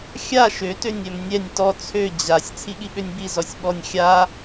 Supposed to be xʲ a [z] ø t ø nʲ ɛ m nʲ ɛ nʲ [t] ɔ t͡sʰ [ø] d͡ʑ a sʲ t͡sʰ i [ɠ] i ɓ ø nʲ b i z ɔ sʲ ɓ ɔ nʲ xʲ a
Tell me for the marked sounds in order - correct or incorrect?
incorrect: ʃ, correct, correct, correct

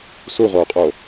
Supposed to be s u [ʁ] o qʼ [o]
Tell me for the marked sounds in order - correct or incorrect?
correct, correct

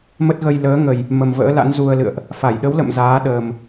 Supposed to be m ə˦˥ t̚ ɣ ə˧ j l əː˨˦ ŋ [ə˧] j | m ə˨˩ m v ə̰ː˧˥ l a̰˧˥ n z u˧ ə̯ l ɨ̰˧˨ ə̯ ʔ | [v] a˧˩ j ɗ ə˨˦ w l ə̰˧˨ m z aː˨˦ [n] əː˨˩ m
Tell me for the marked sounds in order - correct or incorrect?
incorrect: ə˨˩, incorrect: f, incorrect: ɗ

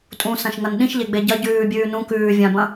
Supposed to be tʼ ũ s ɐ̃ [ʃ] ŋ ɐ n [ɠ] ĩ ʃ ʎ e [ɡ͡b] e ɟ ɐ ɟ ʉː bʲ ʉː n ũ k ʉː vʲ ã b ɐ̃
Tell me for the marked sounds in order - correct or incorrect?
correct, incorrect: ɗ, correct

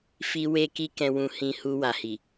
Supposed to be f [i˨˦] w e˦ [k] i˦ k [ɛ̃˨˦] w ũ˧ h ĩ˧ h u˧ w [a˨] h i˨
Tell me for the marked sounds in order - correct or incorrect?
incorrect: i˧, correct, incorrect: ɛ̃˧, correct

